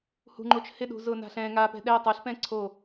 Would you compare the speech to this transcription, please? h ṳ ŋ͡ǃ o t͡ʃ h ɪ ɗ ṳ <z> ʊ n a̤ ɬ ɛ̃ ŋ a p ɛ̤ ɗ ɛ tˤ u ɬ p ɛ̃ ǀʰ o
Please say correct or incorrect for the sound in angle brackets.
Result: correct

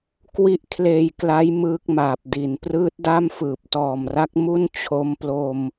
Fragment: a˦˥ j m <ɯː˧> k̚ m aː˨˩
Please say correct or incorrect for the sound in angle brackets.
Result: incorrect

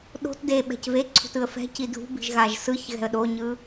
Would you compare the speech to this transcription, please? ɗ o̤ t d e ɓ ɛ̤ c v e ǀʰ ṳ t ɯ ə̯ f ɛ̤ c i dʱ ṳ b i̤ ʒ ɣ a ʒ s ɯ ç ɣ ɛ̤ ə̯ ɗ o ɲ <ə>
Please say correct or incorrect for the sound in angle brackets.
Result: incorrect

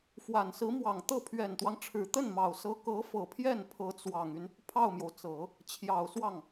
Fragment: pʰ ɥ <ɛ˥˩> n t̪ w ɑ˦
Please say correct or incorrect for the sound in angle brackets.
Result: incorrect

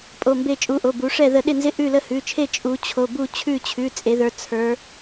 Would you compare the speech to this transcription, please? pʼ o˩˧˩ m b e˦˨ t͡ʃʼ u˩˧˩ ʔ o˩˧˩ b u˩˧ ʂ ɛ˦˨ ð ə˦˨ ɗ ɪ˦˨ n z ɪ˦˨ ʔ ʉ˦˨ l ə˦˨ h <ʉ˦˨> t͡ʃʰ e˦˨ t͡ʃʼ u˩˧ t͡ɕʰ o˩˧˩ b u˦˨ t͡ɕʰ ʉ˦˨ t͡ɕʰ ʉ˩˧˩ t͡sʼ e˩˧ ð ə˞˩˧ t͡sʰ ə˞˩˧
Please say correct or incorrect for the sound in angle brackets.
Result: incorrect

